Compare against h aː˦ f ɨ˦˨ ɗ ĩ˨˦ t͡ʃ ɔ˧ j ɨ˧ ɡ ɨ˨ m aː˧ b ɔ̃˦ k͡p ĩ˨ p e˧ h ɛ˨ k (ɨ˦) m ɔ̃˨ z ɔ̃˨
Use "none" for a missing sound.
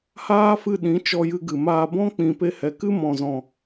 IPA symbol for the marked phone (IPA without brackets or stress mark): ɨ˦